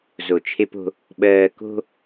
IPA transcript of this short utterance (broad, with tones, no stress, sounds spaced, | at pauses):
z o˨ t͡ʃʰ e˦ p o̤˦ | ɓ ɜː˨ k o̤˦